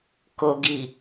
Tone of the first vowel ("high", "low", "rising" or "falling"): low